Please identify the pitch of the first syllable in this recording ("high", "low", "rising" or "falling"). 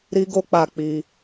high